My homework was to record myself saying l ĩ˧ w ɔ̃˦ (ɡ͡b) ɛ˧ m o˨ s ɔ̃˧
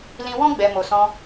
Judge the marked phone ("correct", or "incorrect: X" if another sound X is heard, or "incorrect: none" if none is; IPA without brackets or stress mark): correct